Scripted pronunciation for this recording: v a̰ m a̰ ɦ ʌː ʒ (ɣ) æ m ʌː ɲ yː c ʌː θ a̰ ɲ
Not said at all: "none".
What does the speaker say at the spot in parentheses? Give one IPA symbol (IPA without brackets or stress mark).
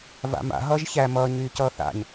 ç